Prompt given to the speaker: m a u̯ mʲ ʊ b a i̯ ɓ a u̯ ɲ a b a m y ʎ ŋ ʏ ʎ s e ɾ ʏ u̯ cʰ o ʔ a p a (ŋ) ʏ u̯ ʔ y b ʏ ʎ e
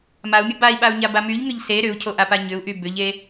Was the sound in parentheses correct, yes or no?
no